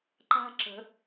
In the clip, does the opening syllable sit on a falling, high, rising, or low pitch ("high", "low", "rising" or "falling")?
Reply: high